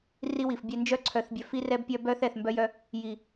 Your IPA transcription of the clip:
r i˦ w i˨ f bʲ ɛ˦ n d͡ʒ œ˦ ǀʰ œ˨ θ bʲ œ˨ f i˦ r ɛ˦ b pʲ œ˦ b œ˦ θ ɛ˨ θ m b œ˦ j œ˦ | j i˨

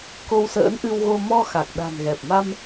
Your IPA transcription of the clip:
k o˧ w s ə̰ː˧˥ n ʔ ɨ˧ w ɣ o˧ m ɔ˧ x a˨˩ k̚ ɗ a̤˨˩ n ɣ ɛ˨˩ p̚ m a˧ m

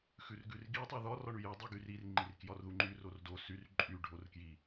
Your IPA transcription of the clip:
x ʉ r ɡ ʉ r ɡ i tˤ u ð ɒ r ɒ ɳ y j o dˤ u ɡ y r i r ŋ͡ǃ i r k j ɒ r ð u ŋ͡ǃ y r o r d o s y r ǃʼ y ɖʱ o r k j i

